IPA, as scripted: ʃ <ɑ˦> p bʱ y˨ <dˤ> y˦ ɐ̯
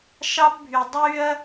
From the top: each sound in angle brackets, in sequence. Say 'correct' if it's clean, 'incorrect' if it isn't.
correct, correct

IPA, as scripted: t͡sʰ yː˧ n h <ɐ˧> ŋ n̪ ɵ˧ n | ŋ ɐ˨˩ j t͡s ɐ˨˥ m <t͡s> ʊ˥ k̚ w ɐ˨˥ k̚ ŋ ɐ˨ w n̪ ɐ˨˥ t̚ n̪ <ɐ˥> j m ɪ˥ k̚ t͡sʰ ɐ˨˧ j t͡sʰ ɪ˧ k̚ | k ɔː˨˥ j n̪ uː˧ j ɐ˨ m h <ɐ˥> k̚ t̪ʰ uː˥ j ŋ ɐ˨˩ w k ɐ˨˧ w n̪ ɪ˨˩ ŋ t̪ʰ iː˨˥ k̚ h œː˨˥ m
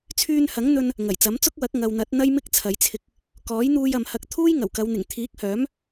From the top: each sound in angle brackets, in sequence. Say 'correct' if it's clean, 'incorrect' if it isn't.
incorrect, correct, correct, incorrect

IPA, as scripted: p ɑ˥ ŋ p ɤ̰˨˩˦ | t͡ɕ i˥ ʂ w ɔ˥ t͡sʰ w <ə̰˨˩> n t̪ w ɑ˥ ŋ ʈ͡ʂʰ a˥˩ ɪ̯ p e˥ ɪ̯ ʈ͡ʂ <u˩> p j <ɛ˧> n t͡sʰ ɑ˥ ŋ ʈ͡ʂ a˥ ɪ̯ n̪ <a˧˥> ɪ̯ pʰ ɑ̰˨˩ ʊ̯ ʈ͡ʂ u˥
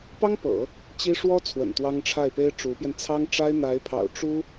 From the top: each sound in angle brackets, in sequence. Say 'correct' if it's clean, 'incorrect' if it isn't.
correct, incorrect, correct, correct

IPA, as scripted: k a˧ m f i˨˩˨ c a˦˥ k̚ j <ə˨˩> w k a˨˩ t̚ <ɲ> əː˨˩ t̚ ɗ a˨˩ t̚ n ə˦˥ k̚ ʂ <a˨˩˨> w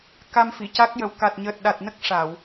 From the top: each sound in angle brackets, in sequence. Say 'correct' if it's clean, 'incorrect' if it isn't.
correct, correct, correct

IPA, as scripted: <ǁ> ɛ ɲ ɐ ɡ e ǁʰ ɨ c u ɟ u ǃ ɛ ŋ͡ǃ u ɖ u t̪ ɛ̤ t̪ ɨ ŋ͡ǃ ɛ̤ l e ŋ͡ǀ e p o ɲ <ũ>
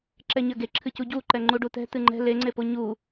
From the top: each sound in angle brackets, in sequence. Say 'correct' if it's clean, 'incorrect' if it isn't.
correct, incorrect

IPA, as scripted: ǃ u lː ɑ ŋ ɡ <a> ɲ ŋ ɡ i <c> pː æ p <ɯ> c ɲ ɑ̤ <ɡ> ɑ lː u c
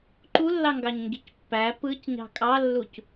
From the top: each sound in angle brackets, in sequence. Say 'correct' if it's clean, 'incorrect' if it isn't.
incorrect, correct, correct, incorrect

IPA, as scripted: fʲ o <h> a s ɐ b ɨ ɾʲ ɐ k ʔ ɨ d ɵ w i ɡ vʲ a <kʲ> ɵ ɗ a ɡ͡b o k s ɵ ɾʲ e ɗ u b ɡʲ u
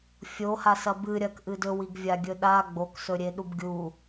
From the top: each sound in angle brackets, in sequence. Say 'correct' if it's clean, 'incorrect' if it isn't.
correct, incorrect

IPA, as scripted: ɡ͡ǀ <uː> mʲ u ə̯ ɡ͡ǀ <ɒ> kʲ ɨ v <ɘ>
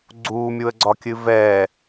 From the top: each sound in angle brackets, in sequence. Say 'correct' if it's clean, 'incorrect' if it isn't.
correct, correct, incorrect

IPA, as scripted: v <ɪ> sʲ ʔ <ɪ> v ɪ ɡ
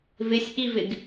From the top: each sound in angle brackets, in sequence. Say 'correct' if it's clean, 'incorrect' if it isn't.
correct, incorrect

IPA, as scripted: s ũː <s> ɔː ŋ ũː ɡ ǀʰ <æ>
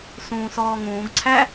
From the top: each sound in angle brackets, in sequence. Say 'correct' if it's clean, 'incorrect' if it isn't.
correct, correct

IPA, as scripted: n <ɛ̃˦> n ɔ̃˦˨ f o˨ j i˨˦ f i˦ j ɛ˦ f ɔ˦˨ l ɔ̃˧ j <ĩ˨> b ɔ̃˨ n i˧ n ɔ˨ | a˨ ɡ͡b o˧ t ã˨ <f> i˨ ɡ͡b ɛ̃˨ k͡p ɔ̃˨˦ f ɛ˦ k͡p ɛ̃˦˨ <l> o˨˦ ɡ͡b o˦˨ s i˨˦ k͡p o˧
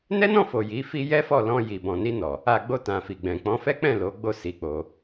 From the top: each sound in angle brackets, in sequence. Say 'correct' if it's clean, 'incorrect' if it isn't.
incorrect, incorrect, correct, correct

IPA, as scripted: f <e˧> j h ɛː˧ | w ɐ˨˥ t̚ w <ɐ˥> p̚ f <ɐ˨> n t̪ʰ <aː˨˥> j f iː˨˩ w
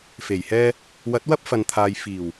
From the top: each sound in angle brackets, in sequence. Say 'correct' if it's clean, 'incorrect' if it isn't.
incorrect, correct, correct, incorrect

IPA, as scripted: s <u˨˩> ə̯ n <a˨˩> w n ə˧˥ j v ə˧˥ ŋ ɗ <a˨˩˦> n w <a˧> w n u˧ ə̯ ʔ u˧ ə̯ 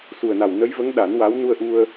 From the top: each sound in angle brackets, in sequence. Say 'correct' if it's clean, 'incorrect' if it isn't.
correct, correct, correct, incorrect

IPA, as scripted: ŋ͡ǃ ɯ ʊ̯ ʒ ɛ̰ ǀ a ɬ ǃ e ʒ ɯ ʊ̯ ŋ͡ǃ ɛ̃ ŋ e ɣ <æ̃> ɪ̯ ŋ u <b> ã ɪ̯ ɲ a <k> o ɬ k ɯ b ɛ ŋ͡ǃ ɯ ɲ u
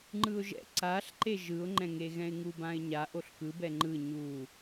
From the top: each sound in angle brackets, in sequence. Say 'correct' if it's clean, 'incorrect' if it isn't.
incorrect, correct, incorrect

